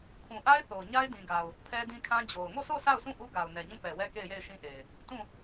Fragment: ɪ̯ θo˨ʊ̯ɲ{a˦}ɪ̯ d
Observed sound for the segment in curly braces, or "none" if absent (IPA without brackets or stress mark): a˦